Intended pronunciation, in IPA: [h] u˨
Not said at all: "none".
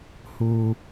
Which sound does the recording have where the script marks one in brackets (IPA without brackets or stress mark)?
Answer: h